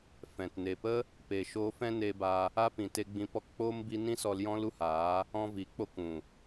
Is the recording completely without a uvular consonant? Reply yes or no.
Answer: yes